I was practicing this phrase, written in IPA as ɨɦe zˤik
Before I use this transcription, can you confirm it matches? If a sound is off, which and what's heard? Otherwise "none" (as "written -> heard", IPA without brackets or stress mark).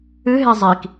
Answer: none